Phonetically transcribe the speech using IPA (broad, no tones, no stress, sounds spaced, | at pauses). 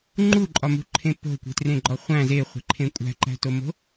ŋ͡ǃ u ǃʼ ɒ m ṳ ǃʰ ẽ p o̤ kʷ e̤ t r ẽ ɡ͡ǃ ɒ χʷ æ̃ z e χʷ e̤ ǃʰ ẽ kʷʼ æ̤ ǃ æ̤ t o m o̤